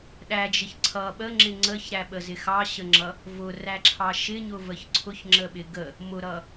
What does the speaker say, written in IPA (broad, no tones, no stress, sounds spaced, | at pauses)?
ɗ æ d͡ʒ ɪ ç ǀʰ ʌ ɓ ə ŋ͡ǁ ɪ ŋ͡ǀ ə ç ɾ æ ɓ ə z ɪ x ɑ ɕ ə ŋ͡ǁ ʌ | v ʊ r æ ǁʰ ɑ ʃ ɪ ɲ ʊ v ə ç ǀʰ ʊ ç ŋ͡ǁ ə ɓ ɪ ɡ ə | m ʊ ɾ ʌ